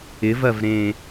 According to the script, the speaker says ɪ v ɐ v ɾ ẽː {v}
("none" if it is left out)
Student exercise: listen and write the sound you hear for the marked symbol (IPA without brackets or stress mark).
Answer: none